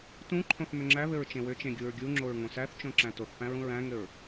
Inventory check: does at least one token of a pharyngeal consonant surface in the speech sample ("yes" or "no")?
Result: no